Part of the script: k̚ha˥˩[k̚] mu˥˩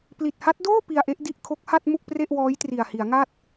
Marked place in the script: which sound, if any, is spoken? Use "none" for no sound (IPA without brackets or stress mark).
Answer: t̚